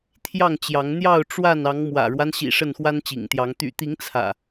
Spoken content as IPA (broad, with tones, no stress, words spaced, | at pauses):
t̪ʰjɑ˥˨ŋt͡ɕjɑ˨˦ŋn̪jɑ˥˨ʊ̯ ʈ͡ʂwa˥˨n ɑ˨˦ŋmwä̰˨˩ɻwa˦nɕḭ˨˩ ʂə˥˨nxwa˦nt͡ɕḭ˨˩ŋt̪jɑ˨˦ŋ t̪y̰˨˩t̪i˨˦ŋ t͡sʰä̰˨˩